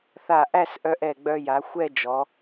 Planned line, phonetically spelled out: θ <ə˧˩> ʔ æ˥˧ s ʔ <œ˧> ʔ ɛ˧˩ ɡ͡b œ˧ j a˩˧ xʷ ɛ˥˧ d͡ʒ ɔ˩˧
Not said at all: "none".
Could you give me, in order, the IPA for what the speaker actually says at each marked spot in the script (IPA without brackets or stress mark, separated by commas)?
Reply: a˧˩, œ˧